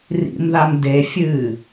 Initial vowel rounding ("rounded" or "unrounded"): unrounded